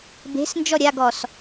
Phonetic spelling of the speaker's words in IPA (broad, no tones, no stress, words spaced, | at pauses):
be̤s nd͡ʒɔɾʲaɡɔs